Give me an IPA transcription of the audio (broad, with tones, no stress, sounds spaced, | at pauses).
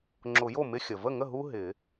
ŋ͡ǁ ʊ˨˩˦ j o˥˩ m ɪ˧˥˧ xʲ ə˩ v ə˥˩ ŋ ə˥˩ ɦ u˥ ɦ ɪ˨˩˦